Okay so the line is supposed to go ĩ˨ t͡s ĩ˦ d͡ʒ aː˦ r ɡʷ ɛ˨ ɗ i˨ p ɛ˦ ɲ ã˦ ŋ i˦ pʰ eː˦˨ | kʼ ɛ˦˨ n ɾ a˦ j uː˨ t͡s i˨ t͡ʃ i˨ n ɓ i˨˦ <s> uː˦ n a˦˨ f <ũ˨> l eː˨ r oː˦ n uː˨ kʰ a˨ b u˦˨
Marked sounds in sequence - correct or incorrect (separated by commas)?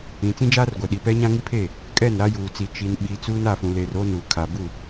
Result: incorrect, correct